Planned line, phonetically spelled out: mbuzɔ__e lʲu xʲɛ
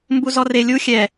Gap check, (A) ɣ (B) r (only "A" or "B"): B